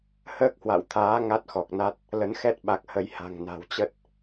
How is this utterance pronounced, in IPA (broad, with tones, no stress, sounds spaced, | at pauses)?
h əː˦˥ k̚ h w a̰˧˨ w t̪ʰ aː˨˦ ŋ a˦˥ t̚ x ɔ˨˩ k̚ n a˦˥ t̚ | l ə˨˦ n x ɛ˦˥ t̚ ɓ a˨˩ k̚ h ə˨˦ j h a̤˨˩ ŋ n a̤˨˩ w t͡ɕ ə˦˥ t̚